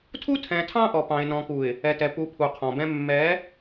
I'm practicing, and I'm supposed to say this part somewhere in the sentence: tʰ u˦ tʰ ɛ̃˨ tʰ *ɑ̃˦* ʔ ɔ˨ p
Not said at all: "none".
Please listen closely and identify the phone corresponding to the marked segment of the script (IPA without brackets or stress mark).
ɑ̃˦